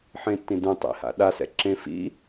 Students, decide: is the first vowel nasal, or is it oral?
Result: nasal